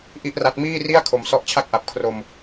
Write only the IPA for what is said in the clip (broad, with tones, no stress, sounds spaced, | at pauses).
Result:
ʔ i˥˩ ʔ r a˦˥ t̚ m iː˥˩ r i˥˩ a̯ kʰ o˧ m s ɔ˦˥ ʔ t͡ɕʰ a˥˩ k̚ ʔ a˨˩ p̚ kʰ r o˧ m